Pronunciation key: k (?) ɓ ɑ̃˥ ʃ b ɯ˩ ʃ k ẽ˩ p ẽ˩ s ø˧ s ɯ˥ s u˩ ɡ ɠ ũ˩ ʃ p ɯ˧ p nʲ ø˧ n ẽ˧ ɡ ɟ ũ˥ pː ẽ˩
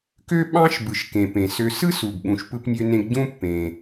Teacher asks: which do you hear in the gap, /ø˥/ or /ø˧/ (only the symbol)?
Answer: ø˥